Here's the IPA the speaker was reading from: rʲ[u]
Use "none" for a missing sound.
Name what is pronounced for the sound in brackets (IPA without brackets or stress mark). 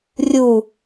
u